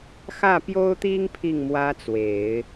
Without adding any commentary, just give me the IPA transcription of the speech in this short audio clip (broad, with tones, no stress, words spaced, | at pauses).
xä˥˩pjo˥ʊ̯t̪i˥ŋ pʰi˥˩ŋ mwä˥t͡swe˨˩˦ɪ̯